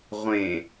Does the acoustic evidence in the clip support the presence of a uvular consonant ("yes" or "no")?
yes